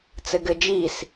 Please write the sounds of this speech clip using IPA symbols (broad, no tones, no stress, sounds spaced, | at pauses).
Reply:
t͡s ɘ ɡ ɘ d͡ʒ i s